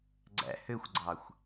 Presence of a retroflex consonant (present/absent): absent